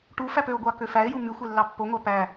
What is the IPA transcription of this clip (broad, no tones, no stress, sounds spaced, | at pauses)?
ʈ u f æ p ø o̯ ɡʷ ɑ k ø f æ e̯ j u m y xʷ e lː ɑ pː o ŋʷ æ p æ